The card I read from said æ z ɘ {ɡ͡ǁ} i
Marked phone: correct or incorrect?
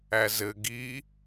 incorrect: ɡ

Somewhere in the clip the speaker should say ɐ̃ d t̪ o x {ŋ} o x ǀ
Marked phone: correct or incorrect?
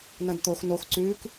incorrect: n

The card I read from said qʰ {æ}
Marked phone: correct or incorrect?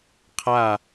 incorrect: a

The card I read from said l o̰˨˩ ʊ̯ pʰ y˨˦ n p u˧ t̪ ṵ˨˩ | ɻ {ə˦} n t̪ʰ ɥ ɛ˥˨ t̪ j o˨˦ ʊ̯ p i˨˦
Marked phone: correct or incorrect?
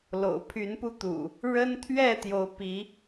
correct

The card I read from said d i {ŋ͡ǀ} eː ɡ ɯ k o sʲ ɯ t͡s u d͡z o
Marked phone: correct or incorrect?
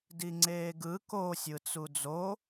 correct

